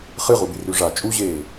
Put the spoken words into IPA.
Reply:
χ ɨ ʁ u b i r ʉ ʐ a t͡ʃʼ u ʑ eː

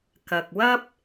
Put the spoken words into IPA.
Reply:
k ɐ˨ k̚ w ɐ˥ p̚

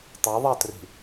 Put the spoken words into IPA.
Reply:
tˤ ɑ ðˤ ɑ t r i̤

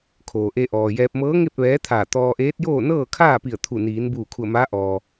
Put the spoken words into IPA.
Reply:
kʰ oː˩ ʔ e˧ ʔ ɔː˩ j ɛː˧ p̚ m ɤː˧˥ ŋ e˥˨ p̚ ʋ ɛː˧˥ t̪ʰ aː˧˩ t̪ ɔː˧ ʔ eː˧˥ t̚ j oː˥˨ n ɤː˥˨ kʰ aː˥˨ p i˧˩ ə̯ t̪ʰ u˧˩ n iː˩˧ n b uː˧˩ kʰ u˧˩ ə̯ m aː˧˥ ʔ ɔː˩

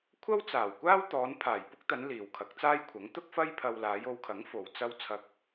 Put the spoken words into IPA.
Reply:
kʷʰ ɐ˥ w t͡s aː˨˩ w kʷ aː˥ w t̪ ɔː˨˧ n pʰ aː˨˩ j p ʊ˥ k̚ t̪ ɐ˨˧ n l iː˨ w kʰ ɐ˨˥ k̚ t͡s aː˥ j kʷʰ ɐ˨˥ ŋ t̪ ʊ˥ k̚ f ɐ˥ j pʰ ɐ˧ w l aː˨˧ j o˨˧ w kʰ ɐ˨˥ ŋ f o˨ w t͡s ɐ˥ w t͡sʰ ɐ˧ k̚

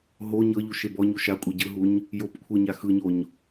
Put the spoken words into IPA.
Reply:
ɦ o ɲ ɤ ʎ u ʃ e b ɔ ɲ u ʃ a kʷʼ ɛ ɟ ɯ ɦ u ɲ | j o p kʷʰ ɯ ɲ a x ɯ ɲ o ɲ

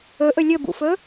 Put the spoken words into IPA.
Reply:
ɵ ʔ ɵ lʲ ɵ b ṵ f ɵ

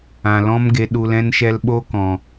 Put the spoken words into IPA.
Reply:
ã˨ l ɔ̃˦ m ɡ e˧ ɗ u˧ l ɛ̃˦ n ʃ ɛ˦ l ɓ o˦ k ɔ̃˨

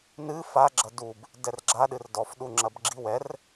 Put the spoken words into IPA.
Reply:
n ɨ f a ɡ͡ǁ ɐ d u b | d ɛ r ɡ͡ǁ a ɗ ɨ r d ɔ f ɗ u ŋ͡ǁ ɐ b ɡ͡ǁ i w ɛ r

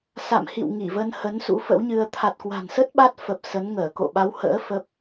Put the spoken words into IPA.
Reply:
s a̰˧˨ m h ḭ˧˨ w ŋ i˧˩ v ə˧ n h ə˨˦ n s ṵ˧˥ f ə̰˧˥ w ɲ ɨ˧ ə̯ t̪ʰ a˨˩ t̚ k w a̤˨˩ n s ə˦˥ t̚ ɓ a˦˥ t̚ f ə˨˩ p̚ s ə˨˦ n ŋ əː˧˩ k o̰˧˨ ɓ a˨˦ w h ə̰ː˧˥ f ə˦˥ p̚

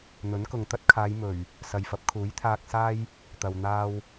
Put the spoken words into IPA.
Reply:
n̪ ɵ˨˥ n k ʊ˨ ŋ t̪ ɐ˥ t̚ kʰ aː˨˧ j m ɵ˨˩ ɥ | s ɐ˨ j f ɐ˨˥ p̚ kʰ uː˨˥ j t̪ʰ aː˧ k̚ s aː˥ j | t̪ ɐ˨ w n̪ aː˥ w

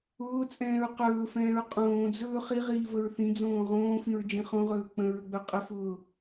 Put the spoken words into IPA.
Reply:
ʊː t͡sʼ ɛ̃ː ɹ q ɵː f ɛ̃ː ɹ qʼ õː d͡z ɵː χ i ʁ iː v ə ɹ θ ĩ d͡z õː ʁ õː f ĩ ɹ d͡ʒ ĩ χ õ ʁ ɵː k͡p ə̃ ɹ ə ɡ͡b ɵ qʼ ə f ʊː

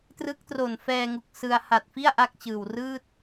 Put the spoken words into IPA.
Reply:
t r ɯ˦˥ k̚ t r o˨˩ n f ɛː˧ ŋ u˨˩ k̚ s ɯ˧ a̯ h a˨˩ t̚ f i˥˩ a̯ ʔ a˥˩ k̚ t͡ɕ ɯː˨˩ w r ɯː˥˩ t̚

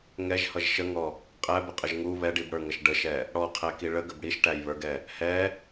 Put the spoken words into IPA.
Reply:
ŋ ɛ ʒ h ʌ ʒ ʃ ə ŋ ɔ | qʼ æ b ə qʼ ə ʒ ŋ u β ɛ ɖ i b ɽ ə˞ ŋ ʌ ʃ ɖ ə ʃ ɛ | ɽ ɔ qʰ æ k i ɭ ə ɡ ə b ɽ i ʃ ʈ æ j β ə˞ ɡ ɛ | h ɛ

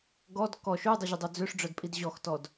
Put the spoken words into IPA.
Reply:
ɡ ɔ d k ɔ ʃ ʉ dˤ y ʑ y dˤ ɵ d͡z ø ʂ ɖ͡ʐ œ d pʼ i d ʑ ɔ x t ɔ d

